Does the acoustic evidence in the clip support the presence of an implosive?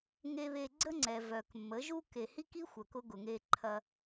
no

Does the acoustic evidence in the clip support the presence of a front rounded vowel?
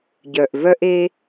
yes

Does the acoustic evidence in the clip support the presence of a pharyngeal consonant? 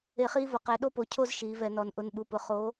no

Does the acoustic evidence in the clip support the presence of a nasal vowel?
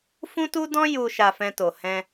yes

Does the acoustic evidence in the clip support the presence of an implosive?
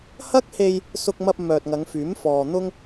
no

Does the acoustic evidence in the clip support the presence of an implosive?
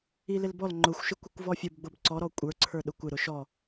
yes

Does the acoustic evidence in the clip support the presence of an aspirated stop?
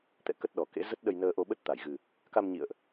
no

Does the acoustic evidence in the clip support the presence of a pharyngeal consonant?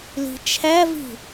no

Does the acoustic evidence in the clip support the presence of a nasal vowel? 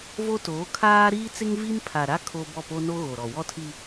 no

